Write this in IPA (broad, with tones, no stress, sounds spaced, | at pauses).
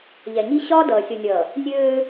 ʎ ɛ˨ ɲ i˦ ɕ ɒː˦ d ʌː˨ sʲ o˨ nʲ ʌː˨ | nʲ øː˦